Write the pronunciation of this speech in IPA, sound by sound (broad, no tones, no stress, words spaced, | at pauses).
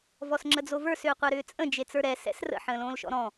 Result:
vɔsŋ͡ǁəd͡zovə˞s ʏːqʷɛɾʏːt͡sʼə̃ d͡ʒet͡sə˞ɾɛ sɛ̰srə̰ ħə̃ːlõːlʃɔ̰ɾɔ̃